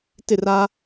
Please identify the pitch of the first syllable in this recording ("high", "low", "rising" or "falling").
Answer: falling